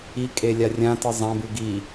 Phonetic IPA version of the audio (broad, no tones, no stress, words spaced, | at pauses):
ikʼe lʲarʲãtɨ zˤãbʉ ɡi